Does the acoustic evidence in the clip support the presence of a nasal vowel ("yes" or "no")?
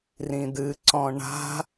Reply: yes